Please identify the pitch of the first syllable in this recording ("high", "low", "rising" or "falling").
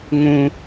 high